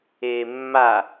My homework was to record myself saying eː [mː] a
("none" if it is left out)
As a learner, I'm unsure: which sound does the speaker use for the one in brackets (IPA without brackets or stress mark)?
mː